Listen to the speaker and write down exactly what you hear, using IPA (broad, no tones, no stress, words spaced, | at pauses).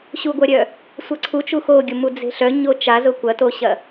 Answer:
ɕuɡʷœɾʲœ | sʷɐǀʰu t͡ʃuxoɡʲʊmu d͡ze̤ɬœ ɲot͡ʃa zʊkʷɐtoɕɐ